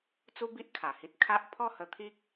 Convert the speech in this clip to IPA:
t͡s u˦ b i˦ ʔ kʰ a˨˩ h i˦ t̚ kʰ a˦ ʔ pʰ ɔ˥˧ h ə˧ t̪ʰ i˦ k̚

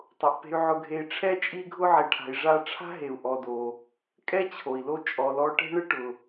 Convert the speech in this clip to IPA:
tˤ ʊ˩ ʔ p e̤˨ y̯ ʕ ʊ˨ ɡʱ e˨ i̯ ʈ͡ʂʰ ɛ˦ t͡ʃʼ i˦ ɡʱ ʊ˦ ʕ e˨ ʈʰ a̤˨ i̯ ʐ a˦ ʈ͡ʂʰ a̤˥ ɦ e˨ u̯ ʔ ɔ˨ d o˨ | kʼ ɛ˥ t͡ɕʰ o˩ i̯ l o˦ t͡ʃʼ ɔ˨ l ɔ˦ ʈ e̤˥ ɳ ɪ˥ ʈ ʊ˨

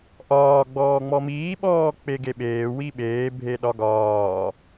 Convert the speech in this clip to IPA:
ʔ ɒː ɡ͡b ɔː ŋ͡m ɔ m iː ɓ ɔː k͡p e ɡ e ɓ eː w i ɓ eː bʱ e ɗ ɒ ɡ ɒː

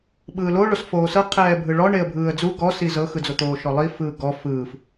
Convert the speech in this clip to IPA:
ɓ ɯː l o ɭ o s f oː s ɤ qʰ ɛː bʱ ɯ ɭ ɔ ɳ e ə̯ bʱ ɯː ə̯ d͡z u ɡ ɔ s i z ɤ x ɯ d͡z o t̪ oː ʃ ɔ lˠ i f ɯː ɡ ɔ f ɯː f

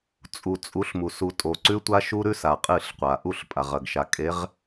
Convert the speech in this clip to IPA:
t͡sʼ u˨ t͡sʼ u˨˦ ɬ m u˨ s u˨ tʼ o˨ ǀ ʉ˦ tʷ a˦ ʃ u˦ ɾ ʉ˦ s a˨ qʼ ɨ˦˨ ɬ qʷ a˨ ʔ u˦˨ ɬ pʼ a˨ ʁ ɐ˨ ɡ ʃ a˨ kʼ e˨˦ ʁ

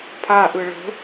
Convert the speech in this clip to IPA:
pʰ a ʔ ɯ ɭ ə̤

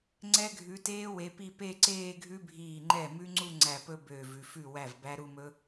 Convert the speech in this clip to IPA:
ŋ͡ǀ ɛ˦˥ ɡʱ ʉ˨˦ t eː˦˥ w e˨˦ p i˥˧ p e˥˧ ǀ eː˥˧ ɡʱ ʉ˦˥ bʱ iː˧˩ ŋ͡ǃ ɛ˥˩ m ʉ˦˥ ŋ͡ǀ u˥˧ ŋ͡ǀ æ˧˩ p ɵ˥˧ b øː˧˩ v ʉ˧˩ f ʉ˥˩ w æ˥˩ v b æ˦˥ ɾ u˥˧ m ɵ˦˥

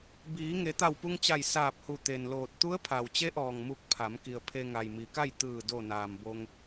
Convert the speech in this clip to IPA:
b iː˩˧ ŋ e˩˧ t̪ a˧˩ w p u˧ ŋ t͡ɕ a˧˩ j s aː˧˩ p̚ h u˧˩ t̪ e˩ n l oː˧˩ t̚ t̪ u˧˥ ə̯ pʰ a˩ w t͡ɕ e˧˥ ʔ ɔː˩ ŋ m u˧ k̚ pʰ a˩˧ m k i˩ ə̯ pʰ e˧ ŋ a˩ j m i˩˧ k a˥˨ j t̪ ɯː˧˩ d o˧˩ n aː˩ m b o˧ ŋ

